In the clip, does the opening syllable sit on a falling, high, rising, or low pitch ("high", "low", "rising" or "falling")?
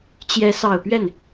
rising